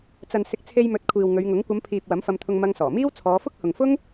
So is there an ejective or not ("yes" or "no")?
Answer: no